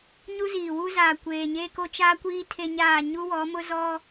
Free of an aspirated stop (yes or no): no